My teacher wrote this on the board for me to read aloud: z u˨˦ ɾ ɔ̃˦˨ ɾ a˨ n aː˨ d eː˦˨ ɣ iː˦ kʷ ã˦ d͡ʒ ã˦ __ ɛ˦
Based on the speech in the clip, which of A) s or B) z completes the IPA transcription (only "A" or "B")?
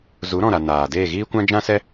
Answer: A